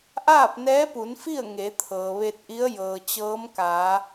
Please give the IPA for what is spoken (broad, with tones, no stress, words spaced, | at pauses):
ʔaː˥˨p̚nɛː˧˥pu˩˧nfi˥˨ə̯ ŋe˩˧t̪ʰɤː˩ ʋe˧t̚ʔi˧˥ə̯ jɤː˩t͡ɕɤː˧˥mkaː˩˧